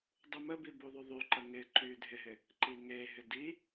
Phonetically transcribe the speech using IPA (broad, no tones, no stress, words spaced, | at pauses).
dˤuməbi buðˤyðˤyǃə ŋɪ ǃydʱɪɦɪ | ǃiŋeɦɪ di